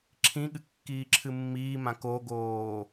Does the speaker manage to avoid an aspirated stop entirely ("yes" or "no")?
no